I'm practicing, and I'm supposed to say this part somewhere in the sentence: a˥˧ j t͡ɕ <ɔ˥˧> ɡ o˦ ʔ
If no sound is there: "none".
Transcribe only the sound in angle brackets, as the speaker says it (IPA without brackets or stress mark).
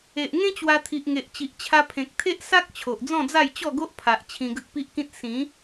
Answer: ɔ˥˧